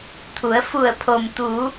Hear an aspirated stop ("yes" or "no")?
yes